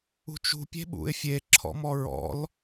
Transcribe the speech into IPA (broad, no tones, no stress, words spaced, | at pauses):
ṳt͡ʃṳ pʲe̤ɓṵɪ̯fʲe ǁʰɔ̰mɔɹɔ̰l